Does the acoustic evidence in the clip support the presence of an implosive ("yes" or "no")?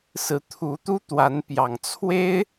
no